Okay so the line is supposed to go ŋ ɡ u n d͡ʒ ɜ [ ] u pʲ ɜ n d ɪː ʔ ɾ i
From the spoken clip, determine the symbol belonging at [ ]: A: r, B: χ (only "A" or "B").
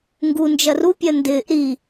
A